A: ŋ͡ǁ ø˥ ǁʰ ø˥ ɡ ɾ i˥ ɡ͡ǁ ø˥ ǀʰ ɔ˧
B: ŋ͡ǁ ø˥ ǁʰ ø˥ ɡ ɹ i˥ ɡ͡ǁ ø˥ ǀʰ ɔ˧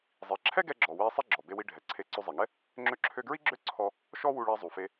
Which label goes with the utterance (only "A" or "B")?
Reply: B